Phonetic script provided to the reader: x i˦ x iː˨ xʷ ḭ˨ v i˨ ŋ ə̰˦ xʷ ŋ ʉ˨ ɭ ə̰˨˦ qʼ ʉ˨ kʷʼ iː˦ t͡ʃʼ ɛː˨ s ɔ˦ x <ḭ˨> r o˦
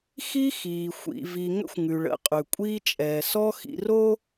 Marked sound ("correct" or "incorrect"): correct